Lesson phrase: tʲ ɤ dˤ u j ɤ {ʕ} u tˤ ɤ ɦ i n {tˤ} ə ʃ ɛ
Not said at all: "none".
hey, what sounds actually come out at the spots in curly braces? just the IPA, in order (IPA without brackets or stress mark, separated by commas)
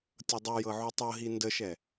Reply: ʕ, d